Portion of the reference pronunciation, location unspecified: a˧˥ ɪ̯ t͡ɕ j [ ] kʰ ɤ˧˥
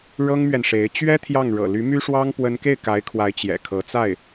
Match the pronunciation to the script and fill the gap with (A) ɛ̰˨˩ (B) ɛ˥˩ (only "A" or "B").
A